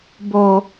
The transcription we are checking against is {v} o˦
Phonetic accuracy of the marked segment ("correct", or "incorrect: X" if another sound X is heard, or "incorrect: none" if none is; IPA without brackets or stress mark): incorrect: b